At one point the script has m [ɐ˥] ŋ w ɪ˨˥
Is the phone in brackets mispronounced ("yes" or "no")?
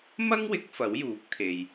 no